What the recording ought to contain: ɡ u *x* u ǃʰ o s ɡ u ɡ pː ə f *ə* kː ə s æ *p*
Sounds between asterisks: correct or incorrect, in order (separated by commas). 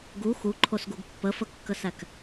correct, correct, incorrect